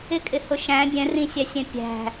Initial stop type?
ejective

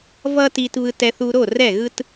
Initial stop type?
plain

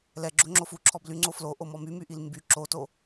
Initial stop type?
click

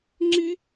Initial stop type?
click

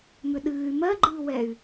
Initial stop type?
implosive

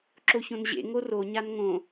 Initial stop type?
click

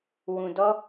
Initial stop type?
plain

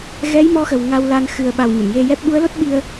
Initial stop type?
implosive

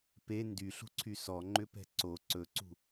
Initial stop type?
plain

